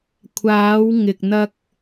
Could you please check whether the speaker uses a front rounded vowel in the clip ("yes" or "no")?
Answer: no